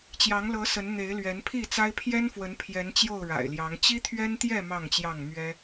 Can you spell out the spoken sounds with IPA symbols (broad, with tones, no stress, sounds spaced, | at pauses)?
t͡ɕ j ɑ˨˦ ŋ l ɤ˨˦ s ə˨˦ n n̪ e˨˦ ɪ̯ l ɥ ɛ˨˦ n pʰ i˥˨ t͡s a˦ ɪ̯ pʰ j ɛ˦ n f w ə˨˦ n pʰ j ɛ˨˦ n t͡ɕ j o˥˨ ʊ̯ ɻ a̰˨˩ ɪ̯ l j ɑ˨˦ ŋ t͡ɕ i˦ t̪ʰ ɥ ɛ˦ n t̪ j ɛ˥˨ m ɑ˥˨ ŋ t͡ɕ j ɑ˥˨ ŋ m ɥ ɛ˦